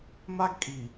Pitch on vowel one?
high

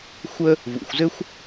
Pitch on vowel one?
high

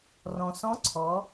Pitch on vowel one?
low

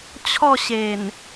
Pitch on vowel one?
falling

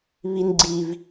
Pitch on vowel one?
low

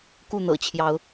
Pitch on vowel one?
falling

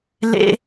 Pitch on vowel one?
high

